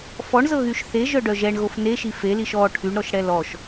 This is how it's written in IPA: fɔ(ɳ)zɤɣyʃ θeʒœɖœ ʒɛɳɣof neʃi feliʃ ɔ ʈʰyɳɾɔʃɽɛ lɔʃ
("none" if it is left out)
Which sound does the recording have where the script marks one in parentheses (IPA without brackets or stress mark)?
ɳ